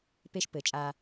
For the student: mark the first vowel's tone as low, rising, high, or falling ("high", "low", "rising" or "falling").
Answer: high